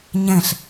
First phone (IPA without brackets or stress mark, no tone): ɲ